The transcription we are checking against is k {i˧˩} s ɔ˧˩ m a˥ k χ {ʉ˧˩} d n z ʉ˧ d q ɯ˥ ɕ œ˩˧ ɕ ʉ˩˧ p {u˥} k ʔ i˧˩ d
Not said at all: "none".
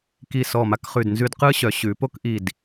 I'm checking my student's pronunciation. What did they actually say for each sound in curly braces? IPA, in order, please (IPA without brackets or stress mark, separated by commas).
i˧˩, ʉ˧˩, o˥